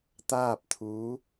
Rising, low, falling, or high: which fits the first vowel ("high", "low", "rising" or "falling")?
falling